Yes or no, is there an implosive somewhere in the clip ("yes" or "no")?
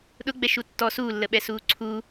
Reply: yes